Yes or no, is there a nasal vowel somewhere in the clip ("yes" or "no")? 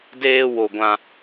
yes